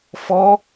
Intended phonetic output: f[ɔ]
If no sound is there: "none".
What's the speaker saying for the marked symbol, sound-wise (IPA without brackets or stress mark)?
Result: ɔ